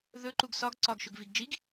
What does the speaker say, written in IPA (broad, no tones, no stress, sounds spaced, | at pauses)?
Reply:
ð ɵ ǃ u ɡ s ɒ ɡ ǀ ɒ ɡ ʃ ɵ ɡ v i ɡ d͡ʒ i ɡ